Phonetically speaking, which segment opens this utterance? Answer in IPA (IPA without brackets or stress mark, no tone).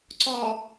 ǀ